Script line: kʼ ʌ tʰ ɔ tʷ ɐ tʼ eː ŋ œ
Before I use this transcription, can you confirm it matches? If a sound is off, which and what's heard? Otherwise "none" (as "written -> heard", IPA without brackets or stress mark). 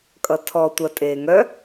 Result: none